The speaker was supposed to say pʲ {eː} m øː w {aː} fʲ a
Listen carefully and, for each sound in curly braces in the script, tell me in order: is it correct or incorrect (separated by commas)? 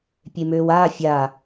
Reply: incorrect, correct